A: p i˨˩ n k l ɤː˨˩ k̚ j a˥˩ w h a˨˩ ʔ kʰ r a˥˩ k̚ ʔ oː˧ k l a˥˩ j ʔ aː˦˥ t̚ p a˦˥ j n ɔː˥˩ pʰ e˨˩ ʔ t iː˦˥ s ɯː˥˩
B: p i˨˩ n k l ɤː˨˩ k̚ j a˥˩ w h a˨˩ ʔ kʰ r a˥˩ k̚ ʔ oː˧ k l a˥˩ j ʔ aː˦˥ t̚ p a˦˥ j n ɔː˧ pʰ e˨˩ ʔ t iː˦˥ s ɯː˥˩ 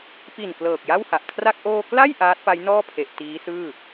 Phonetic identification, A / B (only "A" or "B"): A